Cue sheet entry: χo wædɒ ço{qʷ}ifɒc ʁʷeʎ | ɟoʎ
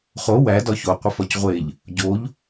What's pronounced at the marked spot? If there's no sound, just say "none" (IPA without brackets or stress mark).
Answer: qʷ